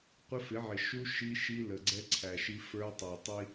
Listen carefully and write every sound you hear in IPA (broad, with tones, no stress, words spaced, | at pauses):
qʷɪ˦fɪ˨˦ʕɪ˨ ʃu˦ ʃi˦ʃi˦ lə˨ɡ͡ǀɛ˦ǀʰæ˨ʃi˦ fə˞˦tˤɑ˨tˤi˦